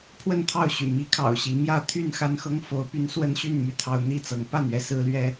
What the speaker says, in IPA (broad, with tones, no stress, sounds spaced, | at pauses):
pʰ w ə˥˨ n t̪ʰ ɑ˥˨ ʊ̯ ɕ y̰˨˩ m i˨˦ kʰ ɑ̰˨˩ ʊ̯ ɕ i˨˦ m j ä˥˨ t̪ʰ y˥˨ n x a˦ n x ɤ˦ ŋ f o˨˦ ʊ̯ p y˦ n s w ə˦ n ɕ y˥˨ n m y˥˨ t̪ʰ ɑ˦ ʊ̯ n̪ i˥˨ t͡s ɤ˨˦ ŋ p a˥˨ n ɥ ɛ˥˨ s ɹ̩˦ l ɥ ɛ˦